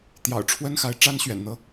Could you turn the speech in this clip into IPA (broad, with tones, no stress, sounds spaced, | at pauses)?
t̪ j ɑ̰˨˩ ʊ̯ ʈ͡ʂʰ w ə˥ n x a˧˥ ɪ̯ ʈ͡ʂ a˥ n ɕ ɥ ɛ̰˨˩ n n̪ ɤ˧˥